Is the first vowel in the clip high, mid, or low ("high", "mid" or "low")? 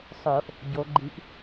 mid